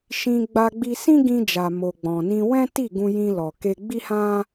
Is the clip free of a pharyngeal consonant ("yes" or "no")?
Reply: yes